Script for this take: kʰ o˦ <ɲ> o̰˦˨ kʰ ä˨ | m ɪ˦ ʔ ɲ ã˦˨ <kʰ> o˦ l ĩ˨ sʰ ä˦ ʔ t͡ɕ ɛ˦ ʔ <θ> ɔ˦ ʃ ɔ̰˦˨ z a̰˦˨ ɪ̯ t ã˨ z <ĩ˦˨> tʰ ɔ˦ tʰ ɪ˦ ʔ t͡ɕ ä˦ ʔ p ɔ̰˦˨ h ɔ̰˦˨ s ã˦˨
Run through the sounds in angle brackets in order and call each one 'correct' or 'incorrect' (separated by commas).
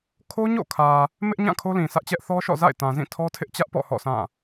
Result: correct, correct, correct, correct